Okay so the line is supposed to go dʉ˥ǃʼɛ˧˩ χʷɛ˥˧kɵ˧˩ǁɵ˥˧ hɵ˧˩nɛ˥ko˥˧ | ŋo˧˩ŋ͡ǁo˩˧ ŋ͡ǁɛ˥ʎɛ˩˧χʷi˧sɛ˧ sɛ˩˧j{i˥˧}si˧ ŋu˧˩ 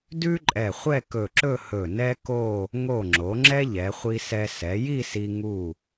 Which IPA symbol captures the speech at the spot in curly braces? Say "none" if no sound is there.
i˥˧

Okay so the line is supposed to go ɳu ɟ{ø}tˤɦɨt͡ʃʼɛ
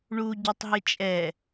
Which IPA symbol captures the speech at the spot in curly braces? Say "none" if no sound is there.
ø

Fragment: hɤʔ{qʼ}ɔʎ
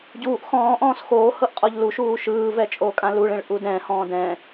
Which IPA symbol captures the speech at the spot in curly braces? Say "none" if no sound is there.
qʼ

